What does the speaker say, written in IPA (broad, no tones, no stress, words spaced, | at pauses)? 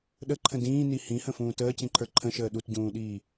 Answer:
ɗəǃʰə̃ dĩːni hĩhə̃fũː təːcĩǃʰə˞ ǃʰə̃ʃəː ɗutɟũːɗiː